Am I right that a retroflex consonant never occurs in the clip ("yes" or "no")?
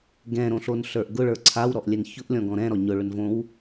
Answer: no